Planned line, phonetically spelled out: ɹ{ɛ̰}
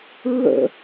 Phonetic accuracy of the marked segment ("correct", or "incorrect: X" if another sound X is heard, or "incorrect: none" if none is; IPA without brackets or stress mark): incorrect: ə̰